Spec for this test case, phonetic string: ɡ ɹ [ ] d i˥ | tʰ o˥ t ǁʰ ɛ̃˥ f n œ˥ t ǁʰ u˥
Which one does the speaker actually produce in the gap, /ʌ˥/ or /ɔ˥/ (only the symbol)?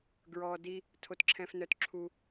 ɔ˥